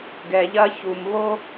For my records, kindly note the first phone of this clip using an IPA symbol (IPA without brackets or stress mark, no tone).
ɡ